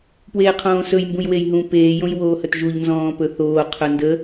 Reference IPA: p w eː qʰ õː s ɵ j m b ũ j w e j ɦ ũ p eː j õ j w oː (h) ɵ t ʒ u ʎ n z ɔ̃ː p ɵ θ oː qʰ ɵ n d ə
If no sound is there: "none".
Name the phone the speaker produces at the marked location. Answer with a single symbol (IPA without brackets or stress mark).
h